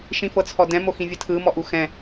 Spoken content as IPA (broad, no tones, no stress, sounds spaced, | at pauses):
ʃ ĩ f ɤ t͡sʰ ɔ d ɛ̃ m o x ĩ vʲ ɯ tʰ ɯ m ɔ ʔ u x ɛ̃